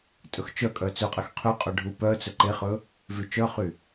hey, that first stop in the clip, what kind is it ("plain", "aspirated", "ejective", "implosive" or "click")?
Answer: ejective